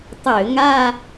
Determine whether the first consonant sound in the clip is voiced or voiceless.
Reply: voiceless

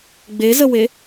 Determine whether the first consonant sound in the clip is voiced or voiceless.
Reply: voiced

